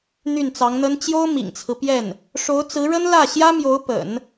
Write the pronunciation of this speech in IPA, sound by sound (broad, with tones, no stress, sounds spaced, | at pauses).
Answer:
n̪ y˥˩ n t͡s ɑ˧˥ ŋ n̪ ə˥ n t͡ɕ j o˥ ʊ̯ m ḭ˨˩ ŋ t͡sʰ ɹ̩˦ p j ɛ˥˩ n | ʂ o˧˥ ʊ̯ t͡s ɹ̩˧˥ ɻ ə˥ n l ä˥˩ ɕ j ä˥ m j o˧˥ ʊ̯ p ə̰˨˩˦ n